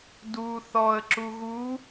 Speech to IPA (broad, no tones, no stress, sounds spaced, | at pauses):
d u θ ɔ ə̯ ǁ u ɣ u